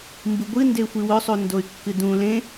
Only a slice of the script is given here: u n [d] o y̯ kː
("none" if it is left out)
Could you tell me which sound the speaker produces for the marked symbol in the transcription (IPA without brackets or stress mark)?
d